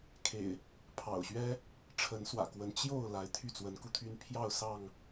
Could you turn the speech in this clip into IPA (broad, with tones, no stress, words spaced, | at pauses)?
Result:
kʰḛ˨˩ɪ̯ | pʰɑ̰˨˩ʊ̯ɕɥɛ˦ | ʈ͡ʂʰə˨˦nswä̰˨˩kwə˨˦n t͡ɕjo˥˨ʊ̯ la˨˦ɪ̯ t̪ʰy˥˨t͡swə˨˦nku˧t̪ʰy˦n pʰjɑ˥˨ʊ̯sɑ˥˨ŋ